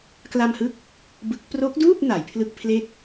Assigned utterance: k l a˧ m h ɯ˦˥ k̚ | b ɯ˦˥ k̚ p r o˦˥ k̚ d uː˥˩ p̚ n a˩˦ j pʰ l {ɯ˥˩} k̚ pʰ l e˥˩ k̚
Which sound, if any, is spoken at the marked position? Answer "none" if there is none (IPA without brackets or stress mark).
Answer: ɯ˥˩